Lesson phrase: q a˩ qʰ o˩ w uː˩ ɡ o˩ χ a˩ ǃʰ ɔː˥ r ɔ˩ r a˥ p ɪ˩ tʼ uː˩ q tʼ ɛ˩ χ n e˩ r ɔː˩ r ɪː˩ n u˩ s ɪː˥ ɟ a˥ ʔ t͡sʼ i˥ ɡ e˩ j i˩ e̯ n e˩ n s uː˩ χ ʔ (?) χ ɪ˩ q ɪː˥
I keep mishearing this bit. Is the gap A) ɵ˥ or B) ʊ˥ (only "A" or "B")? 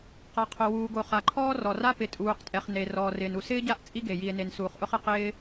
B